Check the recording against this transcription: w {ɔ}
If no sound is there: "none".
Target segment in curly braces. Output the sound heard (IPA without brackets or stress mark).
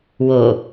o